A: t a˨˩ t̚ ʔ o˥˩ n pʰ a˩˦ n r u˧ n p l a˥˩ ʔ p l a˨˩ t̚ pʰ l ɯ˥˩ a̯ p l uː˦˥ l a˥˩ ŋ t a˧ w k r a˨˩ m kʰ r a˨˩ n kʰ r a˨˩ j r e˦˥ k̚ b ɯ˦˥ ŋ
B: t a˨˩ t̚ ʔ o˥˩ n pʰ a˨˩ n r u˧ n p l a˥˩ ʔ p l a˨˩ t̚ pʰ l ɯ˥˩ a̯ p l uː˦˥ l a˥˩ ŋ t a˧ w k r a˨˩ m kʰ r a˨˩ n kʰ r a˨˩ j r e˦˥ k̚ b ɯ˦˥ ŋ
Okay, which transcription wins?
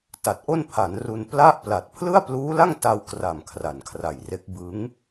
A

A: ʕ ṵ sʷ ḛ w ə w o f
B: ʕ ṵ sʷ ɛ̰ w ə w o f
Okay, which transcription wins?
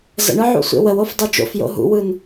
A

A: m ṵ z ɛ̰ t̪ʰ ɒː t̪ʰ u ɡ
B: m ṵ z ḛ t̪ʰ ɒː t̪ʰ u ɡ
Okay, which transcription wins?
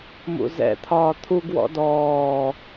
A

